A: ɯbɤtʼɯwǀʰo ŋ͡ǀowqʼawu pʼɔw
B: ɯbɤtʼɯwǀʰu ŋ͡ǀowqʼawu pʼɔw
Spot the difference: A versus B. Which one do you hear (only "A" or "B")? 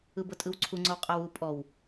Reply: B